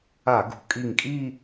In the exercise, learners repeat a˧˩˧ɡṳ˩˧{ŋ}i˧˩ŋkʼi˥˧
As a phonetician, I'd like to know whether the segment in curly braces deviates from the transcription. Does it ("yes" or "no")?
yes